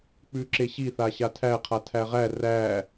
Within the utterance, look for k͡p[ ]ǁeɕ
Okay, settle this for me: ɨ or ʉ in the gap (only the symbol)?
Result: ʉ